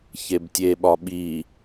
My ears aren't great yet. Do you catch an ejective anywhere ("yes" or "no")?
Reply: no